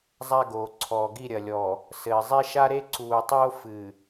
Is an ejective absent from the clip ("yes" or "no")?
yes